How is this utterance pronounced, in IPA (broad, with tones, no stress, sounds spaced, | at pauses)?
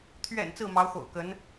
t̪ʰ ɥ ɛ̰˨˩ n t͡s ɹ̩˥˩ m ɑ˧˥ ʊ̯ x o̰˨˩ ʊ̯ k ə˧˥ n